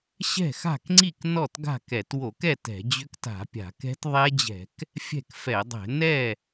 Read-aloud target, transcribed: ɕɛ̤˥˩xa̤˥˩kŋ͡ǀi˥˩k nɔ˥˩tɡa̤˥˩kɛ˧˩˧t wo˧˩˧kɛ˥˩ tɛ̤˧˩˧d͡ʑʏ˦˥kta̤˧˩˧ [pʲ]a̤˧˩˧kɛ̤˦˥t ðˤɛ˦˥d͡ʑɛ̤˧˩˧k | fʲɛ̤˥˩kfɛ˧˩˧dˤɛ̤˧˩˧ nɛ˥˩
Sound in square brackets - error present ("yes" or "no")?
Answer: no